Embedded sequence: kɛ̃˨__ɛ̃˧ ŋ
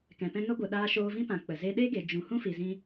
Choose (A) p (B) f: A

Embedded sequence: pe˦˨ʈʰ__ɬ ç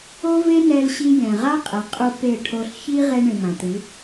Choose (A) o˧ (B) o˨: A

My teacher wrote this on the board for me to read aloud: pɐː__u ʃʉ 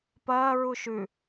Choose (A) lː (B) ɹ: B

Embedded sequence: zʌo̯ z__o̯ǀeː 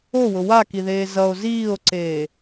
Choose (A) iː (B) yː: A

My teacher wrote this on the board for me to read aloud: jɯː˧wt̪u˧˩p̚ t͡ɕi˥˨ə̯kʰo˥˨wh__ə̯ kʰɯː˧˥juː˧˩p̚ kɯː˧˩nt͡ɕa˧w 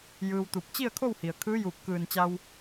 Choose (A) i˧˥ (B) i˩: B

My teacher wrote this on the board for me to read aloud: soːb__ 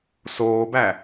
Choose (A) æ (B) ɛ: A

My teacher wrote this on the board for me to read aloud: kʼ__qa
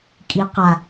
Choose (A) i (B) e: A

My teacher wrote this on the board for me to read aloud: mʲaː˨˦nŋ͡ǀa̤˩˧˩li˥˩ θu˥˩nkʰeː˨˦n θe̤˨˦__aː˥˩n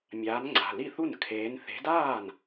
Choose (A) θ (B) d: B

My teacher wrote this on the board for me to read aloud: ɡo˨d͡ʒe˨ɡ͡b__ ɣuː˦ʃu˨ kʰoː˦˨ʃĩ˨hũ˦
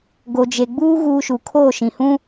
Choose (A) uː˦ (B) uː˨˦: A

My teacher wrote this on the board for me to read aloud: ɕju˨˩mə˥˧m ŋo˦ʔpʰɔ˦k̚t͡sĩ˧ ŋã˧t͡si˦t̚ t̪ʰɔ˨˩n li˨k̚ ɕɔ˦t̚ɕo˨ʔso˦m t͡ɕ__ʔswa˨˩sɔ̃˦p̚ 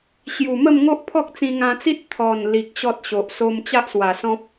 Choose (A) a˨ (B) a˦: B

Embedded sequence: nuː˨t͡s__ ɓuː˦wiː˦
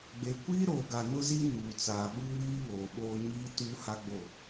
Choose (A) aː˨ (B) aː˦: A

